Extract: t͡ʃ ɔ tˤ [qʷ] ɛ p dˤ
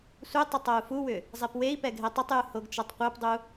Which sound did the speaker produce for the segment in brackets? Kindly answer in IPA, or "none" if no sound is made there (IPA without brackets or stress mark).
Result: qʷ